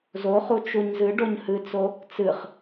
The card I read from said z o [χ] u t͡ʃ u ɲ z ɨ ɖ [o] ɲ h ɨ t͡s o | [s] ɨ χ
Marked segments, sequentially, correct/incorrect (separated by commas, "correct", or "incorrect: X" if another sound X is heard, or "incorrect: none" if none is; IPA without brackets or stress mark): correct, correct, incorrect: t͡s